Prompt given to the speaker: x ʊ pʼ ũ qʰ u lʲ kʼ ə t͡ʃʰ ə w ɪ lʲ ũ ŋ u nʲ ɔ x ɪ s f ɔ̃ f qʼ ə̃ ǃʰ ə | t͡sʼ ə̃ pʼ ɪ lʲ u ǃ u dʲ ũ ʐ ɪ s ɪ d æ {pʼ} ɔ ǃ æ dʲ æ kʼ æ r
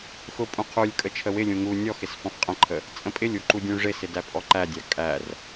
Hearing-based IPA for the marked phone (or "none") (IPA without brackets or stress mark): pʼ